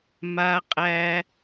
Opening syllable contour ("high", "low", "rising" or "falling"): high